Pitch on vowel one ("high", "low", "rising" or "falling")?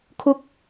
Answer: high